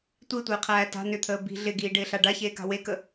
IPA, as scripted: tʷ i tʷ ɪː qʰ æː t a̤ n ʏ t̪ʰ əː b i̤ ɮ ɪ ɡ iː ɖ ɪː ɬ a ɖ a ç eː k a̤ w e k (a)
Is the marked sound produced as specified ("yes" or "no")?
no